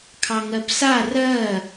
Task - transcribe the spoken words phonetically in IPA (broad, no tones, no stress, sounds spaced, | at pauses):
kʰ ɑ ŋ ɜ p s a r ɜ